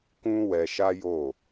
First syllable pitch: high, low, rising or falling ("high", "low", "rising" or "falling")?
high